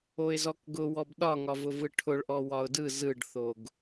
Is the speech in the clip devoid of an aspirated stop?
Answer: no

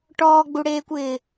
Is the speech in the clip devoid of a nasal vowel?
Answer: yes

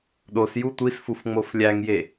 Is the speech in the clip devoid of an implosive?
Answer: no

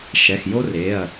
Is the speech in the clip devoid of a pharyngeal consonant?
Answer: yes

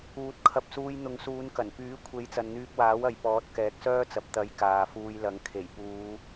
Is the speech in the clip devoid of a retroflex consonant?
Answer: yes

